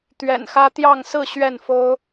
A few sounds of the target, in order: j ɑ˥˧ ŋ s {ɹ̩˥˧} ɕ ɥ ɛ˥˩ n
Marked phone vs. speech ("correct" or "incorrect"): correct